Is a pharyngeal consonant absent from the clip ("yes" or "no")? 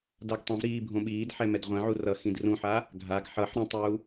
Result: no